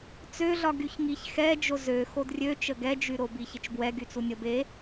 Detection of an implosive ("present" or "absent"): absent